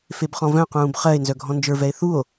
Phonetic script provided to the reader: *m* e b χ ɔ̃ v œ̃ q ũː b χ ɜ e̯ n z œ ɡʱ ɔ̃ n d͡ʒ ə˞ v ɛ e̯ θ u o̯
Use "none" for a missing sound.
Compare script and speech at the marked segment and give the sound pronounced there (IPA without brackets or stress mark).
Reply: f